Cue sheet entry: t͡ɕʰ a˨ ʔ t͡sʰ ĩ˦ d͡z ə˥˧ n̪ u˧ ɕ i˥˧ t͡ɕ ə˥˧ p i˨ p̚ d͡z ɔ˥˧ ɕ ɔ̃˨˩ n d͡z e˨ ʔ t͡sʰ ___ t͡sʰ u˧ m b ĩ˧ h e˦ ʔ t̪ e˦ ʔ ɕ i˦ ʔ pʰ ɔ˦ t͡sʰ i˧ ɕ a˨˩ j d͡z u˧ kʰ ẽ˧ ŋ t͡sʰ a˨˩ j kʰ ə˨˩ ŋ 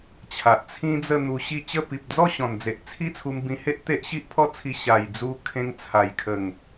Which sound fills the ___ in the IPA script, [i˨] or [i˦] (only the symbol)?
i˦